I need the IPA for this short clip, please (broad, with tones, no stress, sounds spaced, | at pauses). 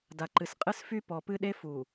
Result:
d a˨ ǃ ɨ˨ s qʼ ɨ˦ s f y˦ p ɔ˨ p ɨ˦ ɗ e˦ f u˨